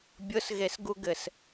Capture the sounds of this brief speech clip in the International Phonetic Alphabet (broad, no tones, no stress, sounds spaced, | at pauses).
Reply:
bʲ ʊ s ɣ e s ɡ u ɡ ɘ s